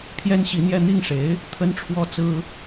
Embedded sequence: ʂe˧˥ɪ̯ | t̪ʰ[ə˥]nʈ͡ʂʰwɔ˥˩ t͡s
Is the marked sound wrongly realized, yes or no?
no